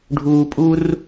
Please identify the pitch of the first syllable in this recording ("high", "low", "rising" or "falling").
high